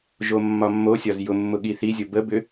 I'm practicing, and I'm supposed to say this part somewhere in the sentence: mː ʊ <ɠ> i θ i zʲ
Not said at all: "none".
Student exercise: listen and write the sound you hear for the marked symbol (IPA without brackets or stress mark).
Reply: ɠ